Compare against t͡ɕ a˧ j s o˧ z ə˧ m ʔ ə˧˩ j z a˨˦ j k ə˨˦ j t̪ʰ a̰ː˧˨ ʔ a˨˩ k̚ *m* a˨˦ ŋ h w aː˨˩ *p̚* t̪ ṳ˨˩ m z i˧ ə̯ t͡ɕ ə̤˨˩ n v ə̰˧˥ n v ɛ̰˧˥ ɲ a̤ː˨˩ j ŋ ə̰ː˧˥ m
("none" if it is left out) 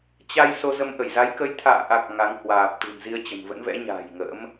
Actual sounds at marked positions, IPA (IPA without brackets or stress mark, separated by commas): ŋ, p̚